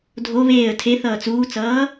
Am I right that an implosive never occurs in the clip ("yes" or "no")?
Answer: yes